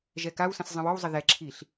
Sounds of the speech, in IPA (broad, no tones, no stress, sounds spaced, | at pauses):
ʒ ɛ k a w s ə̃ s zˤ ə̃ w ɔ w zˤ ə ð ɛ ǁʰ i ɬ